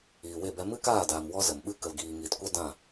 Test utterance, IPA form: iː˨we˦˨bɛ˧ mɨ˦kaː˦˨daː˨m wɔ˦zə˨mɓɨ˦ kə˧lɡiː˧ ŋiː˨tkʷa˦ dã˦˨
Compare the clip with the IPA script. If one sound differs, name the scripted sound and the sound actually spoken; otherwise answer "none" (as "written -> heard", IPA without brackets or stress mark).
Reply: none